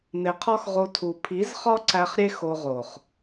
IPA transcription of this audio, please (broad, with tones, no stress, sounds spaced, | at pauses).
n̪ e˨ qʰ ɒ˦ x ʁ o˧ tʰ u˨ pʰ i˨˦ z χ ɒ˦ ǀ æ˧ χ ɾʲ e˦ x o˧ ʁ o˨ χ